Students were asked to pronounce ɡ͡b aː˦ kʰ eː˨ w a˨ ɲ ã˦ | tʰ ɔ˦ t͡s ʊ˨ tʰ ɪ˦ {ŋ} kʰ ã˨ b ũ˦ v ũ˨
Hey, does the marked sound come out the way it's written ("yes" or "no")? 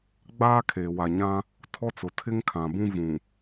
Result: yes